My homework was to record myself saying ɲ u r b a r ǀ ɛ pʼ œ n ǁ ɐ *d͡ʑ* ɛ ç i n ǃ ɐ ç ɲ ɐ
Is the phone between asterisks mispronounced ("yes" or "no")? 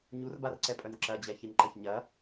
no